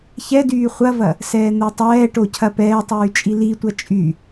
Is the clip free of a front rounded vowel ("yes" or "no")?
no